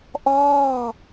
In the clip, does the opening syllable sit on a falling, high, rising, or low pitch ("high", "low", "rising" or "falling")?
falling